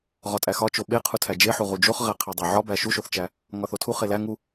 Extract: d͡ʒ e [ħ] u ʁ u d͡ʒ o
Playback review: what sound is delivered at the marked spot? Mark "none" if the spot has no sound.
ħ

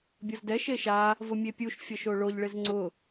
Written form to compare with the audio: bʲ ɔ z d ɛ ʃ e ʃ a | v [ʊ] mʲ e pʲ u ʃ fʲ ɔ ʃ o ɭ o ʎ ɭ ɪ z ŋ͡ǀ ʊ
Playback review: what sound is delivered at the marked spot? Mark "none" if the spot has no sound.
ʊ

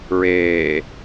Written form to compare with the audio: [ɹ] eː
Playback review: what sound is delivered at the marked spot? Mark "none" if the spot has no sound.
ɹ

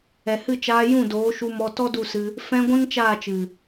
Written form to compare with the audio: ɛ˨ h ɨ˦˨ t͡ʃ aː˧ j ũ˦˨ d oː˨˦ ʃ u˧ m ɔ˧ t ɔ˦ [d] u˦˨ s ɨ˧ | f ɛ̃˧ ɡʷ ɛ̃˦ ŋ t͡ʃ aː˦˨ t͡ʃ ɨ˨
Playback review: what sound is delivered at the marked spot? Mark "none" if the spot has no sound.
d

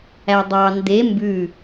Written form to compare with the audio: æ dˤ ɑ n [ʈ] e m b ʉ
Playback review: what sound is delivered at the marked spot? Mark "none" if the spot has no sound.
d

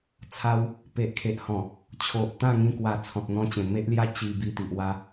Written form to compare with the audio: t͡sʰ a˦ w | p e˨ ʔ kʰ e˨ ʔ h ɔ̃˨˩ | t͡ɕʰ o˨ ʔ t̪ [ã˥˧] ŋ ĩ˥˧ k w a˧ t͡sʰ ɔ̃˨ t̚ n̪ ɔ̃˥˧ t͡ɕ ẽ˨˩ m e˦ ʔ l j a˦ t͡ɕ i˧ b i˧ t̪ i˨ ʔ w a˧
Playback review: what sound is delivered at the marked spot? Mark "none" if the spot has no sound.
ã˥˧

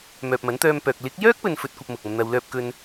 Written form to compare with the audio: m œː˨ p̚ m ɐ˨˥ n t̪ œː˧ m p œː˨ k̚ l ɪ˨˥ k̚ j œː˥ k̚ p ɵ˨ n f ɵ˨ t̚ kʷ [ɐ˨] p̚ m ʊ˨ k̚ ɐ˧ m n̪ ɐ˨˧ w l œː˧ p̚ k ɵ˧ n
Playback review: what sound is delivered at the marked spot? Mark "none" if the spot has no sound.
ɐ˨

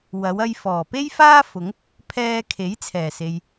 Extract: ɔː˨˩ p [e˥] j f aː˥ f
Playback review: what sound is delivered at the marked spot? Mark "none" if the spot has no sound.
e˥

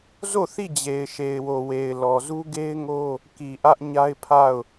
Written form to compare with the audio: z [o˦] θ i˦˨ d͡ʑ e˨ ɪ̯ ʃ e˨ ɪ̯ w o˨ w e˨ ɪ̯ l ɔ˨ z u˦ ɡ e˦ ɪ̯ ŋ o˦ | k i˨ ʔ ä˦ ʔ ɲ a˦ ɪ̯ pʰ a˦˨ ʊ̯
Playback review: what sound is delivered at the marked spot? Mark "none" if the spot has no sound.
o˦˨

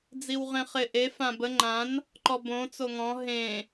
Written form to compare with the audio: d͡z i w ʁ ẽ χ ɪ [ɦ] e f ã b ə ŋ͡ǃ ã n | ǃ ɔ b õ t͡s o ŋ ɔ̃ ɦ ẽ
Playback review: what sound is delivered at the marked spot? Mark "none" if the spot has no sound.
ʔ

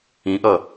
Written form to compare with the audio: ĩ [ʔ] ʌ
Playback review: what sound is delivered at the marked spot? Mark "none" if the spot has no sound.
ʔ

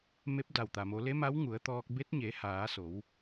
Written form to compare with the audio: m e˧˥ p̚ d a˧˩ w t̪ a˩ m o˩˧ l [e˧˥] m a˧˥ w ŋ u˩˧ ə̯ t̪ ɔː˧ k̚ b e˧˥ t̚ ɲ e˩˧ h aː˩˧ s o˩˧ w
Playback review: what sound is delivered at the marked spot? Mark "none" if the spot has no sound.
e˧˥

